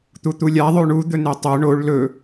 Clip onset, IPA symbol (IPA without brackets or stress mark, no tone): t̪